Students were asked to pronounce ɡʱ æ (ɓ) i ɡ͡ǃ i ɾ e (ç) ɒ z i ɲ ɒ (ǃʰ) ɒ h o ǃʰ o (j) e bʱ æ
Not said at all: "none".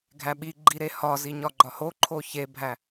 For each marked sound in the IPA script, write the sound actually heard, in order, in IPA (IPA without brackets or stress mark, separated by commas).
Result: ɓ, h, ɡ͡ǃ, ç